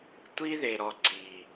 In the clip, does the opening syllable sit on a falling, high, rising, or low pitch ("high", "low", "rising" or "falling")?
high